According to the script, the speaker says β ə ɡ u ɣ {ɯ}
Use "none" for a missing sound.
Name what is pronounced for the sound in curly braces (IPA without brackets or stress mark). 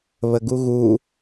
u